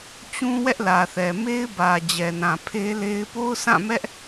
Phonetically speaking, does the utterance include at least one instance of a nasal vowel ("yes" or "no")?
yes